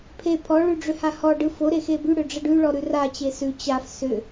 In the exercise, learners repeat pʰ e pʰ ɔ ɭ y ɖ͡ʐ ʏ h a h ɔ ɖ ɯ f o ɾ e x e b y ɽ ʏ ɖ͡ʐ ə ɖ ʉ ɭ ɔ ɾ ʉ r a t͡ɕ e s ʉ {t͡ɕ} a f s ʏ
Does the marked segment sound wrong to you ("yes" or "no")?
no